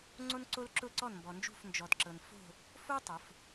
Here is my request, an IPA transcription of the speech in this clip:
ŋ͡ǀ o˥ n ǀ o˥ l ǁ ʊ˥˧ ǀ ɔ˥˧ n m b ɔ˧ n d͡ʒ ṳ˥˧ f n d͡ʒ ɔ˧ d ǁ ɤ˧ n f o̤˥˧ | f o˥ tˤ ʊ˩˧ f

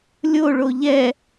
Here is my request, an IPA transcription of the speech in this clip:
lʲ o ɭ o ʎ ɛ

